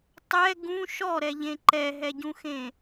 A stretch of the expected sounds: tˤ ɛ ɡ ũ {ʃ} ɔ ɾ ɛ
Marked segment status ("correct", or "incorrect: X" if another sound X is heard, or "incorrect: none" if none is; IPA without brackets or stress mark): correct